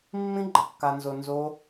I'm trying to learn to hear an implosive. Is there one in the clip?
no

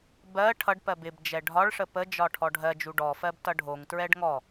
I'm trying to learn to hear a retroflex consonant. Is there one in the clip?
yes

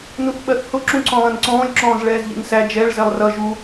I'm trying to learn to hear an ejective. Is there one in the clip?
no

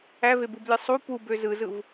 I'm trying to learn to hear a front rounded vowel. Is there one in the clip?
yes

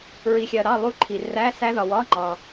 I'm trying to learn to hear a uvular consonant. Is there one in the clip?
no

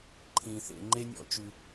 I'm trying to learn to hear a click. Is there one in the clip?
yes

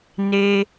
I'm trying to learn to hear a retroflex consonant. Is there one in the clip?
no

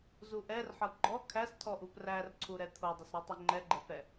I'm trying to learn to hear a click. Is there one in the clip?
yes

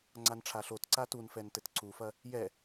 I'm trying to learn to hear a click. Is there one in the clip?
yes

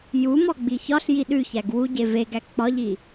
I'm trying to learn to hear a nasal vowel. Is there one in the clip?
no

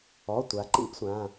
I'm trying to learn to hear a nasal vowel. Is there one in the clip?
yes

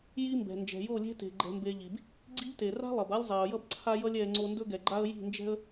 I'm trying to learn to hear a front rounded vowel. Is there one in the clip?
no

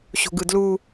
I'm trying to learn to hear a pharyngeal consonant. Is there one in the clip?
no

